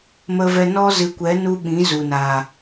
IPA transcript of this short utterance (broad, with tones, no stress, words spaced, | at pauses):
mə˦vɛ˦ nɔ˦zɨ˨˦kʷɛ˨˦ nu˦ɓĩ˨˦zu˨ na˨